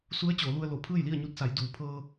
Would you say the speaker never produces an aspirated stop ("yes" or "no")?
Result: no